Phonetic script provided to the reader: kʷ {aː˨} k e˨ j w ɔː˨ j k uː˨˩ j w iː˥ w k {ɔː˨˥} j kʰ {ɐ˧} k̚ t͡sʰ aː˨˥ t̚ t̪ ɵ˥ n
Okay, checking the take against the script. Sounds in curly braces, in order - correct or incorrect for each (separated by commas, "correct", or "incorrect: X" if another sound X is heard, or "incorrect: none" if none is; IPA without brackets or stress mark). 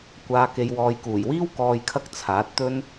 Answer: correct, incorrect: ɔː˨, correct